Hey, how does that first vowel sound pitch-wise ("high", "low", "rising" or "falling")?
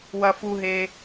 high